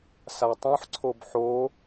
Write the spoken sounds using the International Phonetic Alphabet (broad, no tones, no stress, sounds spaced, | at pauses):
s a tˤ õ ħ ǀʰ o b ħ o